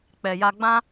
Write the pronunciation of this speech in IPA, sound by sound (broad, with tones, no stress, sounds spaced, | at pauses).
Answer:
k͡p ɛ˨ j a˧ ɡ͡b ã˦